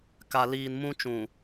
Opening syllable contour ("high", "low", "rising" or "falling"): low